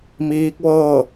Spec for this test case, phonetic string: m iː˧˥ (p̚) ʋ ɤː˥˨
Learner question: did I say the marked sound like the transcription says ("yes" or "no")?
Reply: no